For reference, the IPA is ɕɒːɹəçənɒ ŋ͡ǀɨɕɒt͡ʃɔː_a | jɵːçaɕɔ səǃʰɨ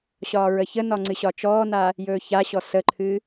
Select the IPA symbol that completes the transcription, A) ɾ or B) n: B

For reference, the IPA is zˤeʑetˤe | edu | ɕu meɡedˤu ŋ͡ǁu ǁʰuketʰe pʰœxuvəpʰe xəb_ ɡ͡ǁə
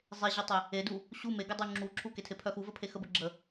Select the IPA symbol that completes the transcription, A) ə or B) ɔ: A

